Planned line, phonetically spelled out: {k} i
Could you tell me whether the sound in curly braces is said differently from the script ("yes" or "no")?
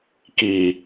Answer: no